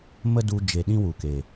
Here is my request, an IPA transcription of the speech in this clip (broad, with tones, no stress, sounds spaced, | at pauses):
m ə˦ d u˧ d͡ʒ e˨ ɗ ĩ˦ w u˨ k e˨